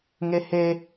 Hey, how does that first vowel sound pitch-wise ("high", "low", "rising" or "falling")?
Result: high